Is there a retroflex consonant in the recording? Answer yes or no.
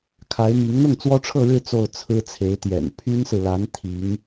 yes